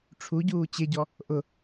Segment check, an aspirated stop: present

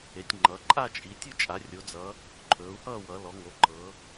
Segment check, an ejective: present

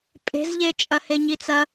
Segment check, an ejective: present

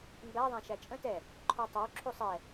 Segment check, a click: present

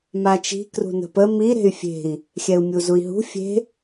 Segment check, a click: absent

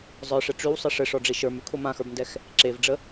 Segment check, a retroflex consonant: present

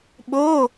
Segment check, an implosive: present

